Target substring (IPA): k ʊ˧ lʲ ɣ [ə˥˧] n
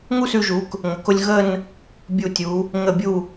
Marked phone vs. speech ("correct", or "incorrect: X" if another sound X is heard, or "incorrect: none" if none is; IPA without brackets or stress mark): correct